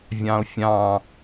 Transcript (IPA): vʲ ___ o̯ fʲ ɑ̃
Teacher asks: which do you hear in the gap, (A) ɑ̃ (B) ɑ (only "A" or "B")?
A